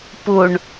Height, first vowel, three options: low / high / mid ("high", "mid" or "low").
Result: high